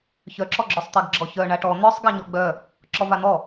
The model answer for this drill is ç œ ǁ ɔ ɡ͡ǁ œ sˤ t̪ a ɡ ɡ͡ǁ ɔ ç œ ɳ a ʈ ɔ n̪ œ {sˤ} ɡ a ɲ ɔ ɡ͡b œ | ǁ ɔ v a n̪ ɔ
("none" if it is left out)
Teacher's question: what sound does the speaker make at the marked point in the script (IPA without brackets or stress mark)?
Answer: sˤ